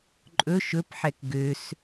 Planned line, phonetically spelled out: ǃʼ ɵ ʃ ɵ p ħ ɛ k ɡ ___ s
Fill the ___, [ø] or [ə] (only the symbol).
ø